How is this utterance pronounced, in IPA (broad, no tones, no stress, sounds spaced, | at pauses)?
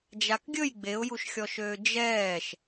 d͡ʒ a k ɡʲ ɵ j ɡ͡b e ʊ̯ j u ʃ xʲ ɔ ʃ øː d͡ʒ ɛː ʃ